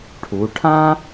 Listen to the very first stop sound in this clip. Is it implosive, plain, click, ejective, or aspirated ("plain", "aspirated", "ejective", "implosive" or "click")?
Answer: aspirated